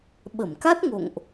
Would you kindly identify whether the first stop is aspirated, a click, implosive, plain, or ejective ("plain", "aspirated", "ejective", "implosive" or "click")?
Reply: implosive